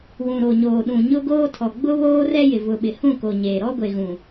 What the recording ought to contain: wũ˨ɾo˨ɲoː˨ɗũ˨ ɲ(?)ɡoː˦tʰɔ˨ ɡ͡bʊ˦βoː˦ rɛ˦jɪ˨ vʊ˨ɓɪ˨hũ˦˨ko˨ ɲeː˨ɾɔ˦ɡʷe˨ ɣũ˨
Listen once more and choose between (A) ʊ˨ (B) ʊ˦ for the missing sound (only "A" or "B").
B